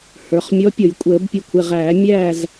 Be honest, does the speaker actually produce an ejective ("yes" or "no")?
yes